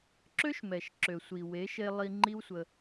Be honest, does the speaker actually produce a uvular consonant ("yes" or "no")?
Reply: no